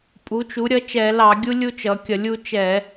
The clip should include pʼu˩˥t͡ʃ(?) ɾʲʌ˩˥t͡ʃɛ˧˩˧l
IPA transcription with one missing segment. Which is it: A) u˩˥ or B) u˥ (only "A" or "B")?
A